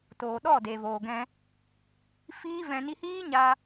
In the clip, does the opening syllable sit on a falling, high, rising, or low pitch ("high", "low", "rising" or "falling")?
low